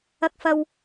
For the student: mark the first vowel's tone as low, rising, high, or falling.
high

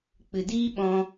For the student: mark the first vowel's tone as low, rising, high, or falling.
low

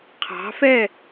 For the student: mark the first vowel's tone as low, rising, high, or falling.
rising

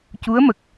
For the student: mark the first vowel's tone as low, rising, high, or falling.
rising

